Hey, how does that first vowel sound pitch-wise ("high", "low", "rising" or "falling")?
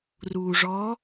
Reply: low